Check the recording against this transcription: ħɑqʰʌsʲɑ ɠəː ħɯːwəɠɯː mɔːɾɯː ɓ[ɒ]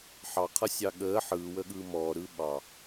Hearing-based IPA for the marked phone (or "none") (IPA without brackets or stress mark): ɑ